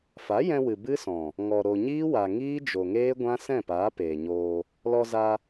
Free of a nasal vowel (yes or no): no